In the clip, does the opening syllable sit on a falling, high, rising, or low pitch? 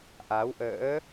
rising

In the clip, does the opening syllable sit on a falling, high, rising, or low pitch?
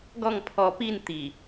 falling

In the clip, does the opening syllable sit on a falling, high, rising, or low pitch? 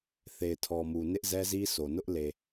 low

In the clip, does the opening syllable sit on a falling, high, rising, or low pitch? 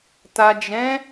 low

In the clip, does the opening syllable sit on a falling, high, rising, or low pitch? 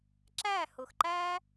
falling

